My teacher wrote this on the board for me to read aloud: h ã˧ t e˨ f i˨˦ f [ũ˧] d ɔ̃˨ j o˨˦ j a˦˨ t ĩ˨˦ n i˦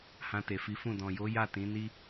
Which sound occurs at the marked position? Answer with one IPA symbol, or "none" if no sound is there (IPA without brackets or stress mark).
ũ˦˨